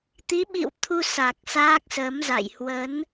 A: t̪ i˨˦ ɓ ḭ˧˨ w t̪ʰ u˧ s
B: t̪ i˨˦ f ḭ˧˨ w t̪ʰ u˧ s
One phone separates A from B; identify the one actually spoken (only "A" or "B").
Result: A